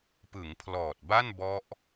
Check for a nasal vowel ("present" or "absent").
absent